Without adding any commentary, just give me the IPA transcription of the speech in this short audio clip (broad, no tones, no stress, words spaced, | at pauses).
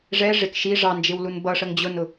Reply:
ʐɛ ʐɪk ʃi ʐɑnd͡ʒɪwlun bʌʂəŋ d͡ʑʊnʊ